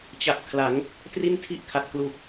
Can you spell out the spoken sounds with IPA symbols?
t͡ɕ a˨˩ p̚ kʰ l a˩˦ ŋ | t r i˥˩ n tʰ i˥˩ ʔ kʰ a˨˩ t̚ k l u˨˩ k̚

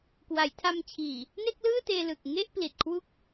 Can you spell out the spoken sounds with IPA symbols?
k w a˩˦ j tʰ a˧ m t͡ɕʰ iː˨˩ | n e˥˩ k̚ l ɯː˥˩ t eː˧ l ɯ˨˩ k̚ ŋ e˥˩ ʔ p l i˨˩ t̚ kʰ w u˥˩ k̚

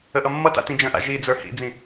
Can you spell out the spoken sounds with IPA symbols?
ə ʔ ʌ mː ʌ t a̰ t ĩ d͡ʒ ə̃ ʔ a̰ ʒ i d͡z ə˞ h ḭ d͡z ĩ

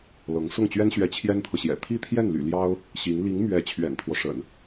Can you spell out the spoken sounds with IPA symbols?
l ɤ˧˥ ŋ s ʊ˥˩ ŋ t͡ɕ ɥ ɛ˥ n ɕ ɥ ɛ˧˥ t͡ɕʰ j ɛ˥ n t̪ʰ ɤ˨ ɕ j ɛ̰˨˩ t̪ʰ i˥˧ t̪ʰ j ɛ˥˩ n l y̰˨˩ l j ɑ˥ ʊ̯ | ɕ i˧˥ ŋ l i˧˥ ŋ m ɥ ɛ˧˥ t͡ɕʰ ɥ ɛ̰˨˩ n t̪ʰ w ɔ˦ ʂ ə̰˨˩˦ n

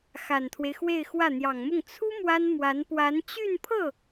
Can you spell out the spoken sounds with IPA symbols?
x a˨˩ n t̪ʰ w e˦ ɪ̯ x w e˥˧ ɪ̯ x w ä˥˩ n̪ j ɑ˨˩ ŋ m ʊ˥˩ ŋ t͡sʰ u˥ m w a˥ n m w a˧˥ n p w a˧˥ n t͡ɕ y˥˧ n pʰ ɤ˥˩

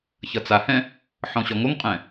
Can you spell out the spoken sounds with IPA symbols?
ç ʌ t͡s a h ɛ̃ | ħ ɔ̃ ɕ ɔ ŋ o ŋ qʼ ɛ̃

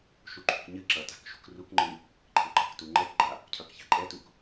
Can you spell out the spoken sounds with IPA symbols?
ʃ u ǃʰ ṳ k ɲ ɨ ǁ ʌ t a̤ k ʃ ṳ k r u k ŋ͡ǃ ɨ | ǃʰ ɘ ɡ͡ǃ ʌ k t u ŋ͡ǃ ɛ k ɡ͡ǃ a | cʰ ʌ k ç a̤ ǃʼ ɛ t u k

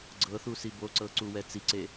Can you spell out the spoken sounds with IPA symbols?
ɡ͡ǀ ɤ θ u s i b o ǀ ɤ ǀ u w ɛ t͡s i ǀ e

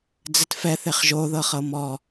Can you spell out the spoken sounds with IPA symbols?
d͡z ɘ t f ɛ θ e χ ʒ o ð ɤ χ ɤ m ɔ

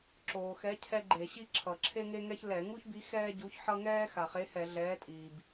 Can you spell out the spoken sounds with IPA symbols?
ǁ oː˩ x ɛ˨˥ cʰ ɛ˥ ɡ͡ǃ e˧˩˧ ɕ i˥ ǁʰ ʌ˩ ǁʰ e˥ ŋ e˥ ŋ ɛ˥ ç l ɛ˧˩˧ ŋ u˥ ç b i˨˥ x ɛː˥ ɟ u˨˥ ç ħ ʌ˥ ŋ ɛː˥ x a˩ χ e˨˥ h ɛ˧˩˧ ɮ ɛː˨˥ tʼ iː˩ b

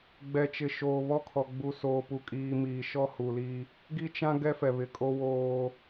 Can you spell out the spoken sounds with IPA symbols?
ɡ͡b ɛ˨ t͡ʃ ɪ˨ ʃ oː˨ β ɔ˦ kʰ ɔ˨ ɡ͡b u˨ s oː˨ p u˨ kʼ iː˨ m iː˨ ʃ ɔ˦ h u˨ l i˦ | ɡ i˦ t͡ʃ ã˦ ɡ ɛ˦ f ɛ˨ β ɪ˨ kʼ o˦ w oː˦

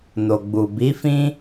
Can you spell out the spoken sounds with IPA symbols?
n o˨ ɡ͡b u˨ b i˨˦ f ĩ˦

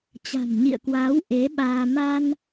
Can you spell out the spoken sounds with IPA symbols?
t͡ɕ a̤˨˩ m ɲ ḭ˧˨ ə̯ k w aː˨˦ w ʔ e˨˦ ɓ aː˧ m a˧ n

